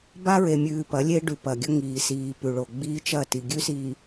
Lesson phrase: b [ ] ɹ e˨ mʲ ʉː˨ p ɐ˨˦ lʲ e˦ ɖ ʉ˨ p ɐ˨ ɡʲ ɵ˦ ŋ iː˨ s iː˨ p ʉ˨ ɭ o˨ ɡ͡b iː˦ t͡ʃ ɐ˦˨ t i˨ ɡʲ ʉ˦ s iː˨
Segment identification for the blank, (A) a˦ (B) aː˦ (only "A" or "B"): A